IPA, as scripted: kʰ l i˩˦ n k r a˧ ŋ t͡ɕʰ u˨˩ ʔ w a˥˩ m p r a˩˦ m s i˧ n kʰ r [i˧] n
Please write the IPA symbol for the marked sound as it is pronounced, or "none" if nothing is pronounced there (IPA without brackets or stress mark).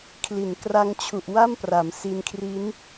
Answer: i˦˥